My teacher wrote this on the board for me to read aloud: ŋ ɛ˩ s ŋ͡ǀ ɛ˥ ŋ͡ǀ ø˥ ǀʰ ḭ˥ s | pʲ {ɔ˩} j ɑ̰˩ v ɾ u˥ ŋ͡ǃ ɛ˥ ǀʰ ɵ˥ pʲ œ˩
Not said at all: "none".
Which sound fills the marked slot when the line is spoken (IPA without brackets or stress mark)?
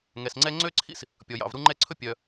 ɔ˩